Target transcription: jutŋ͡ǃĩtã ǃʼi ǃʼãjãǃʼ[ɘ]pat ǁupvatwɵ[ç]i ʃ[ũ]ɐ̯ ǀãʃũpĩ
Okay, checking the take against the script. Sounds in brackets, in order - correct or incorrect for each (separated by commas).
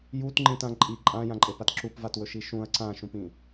incorrect, incorrect, correct